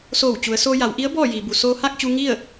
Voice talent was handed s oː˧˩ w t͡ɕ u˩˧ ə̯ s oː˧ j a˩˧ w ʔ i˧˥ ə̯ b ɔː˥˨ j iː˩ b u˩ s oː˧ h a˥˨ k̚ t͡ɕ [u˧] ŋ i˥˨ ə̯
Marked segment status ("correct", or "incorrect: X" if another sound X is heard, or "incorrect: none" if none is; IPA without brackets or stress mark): correct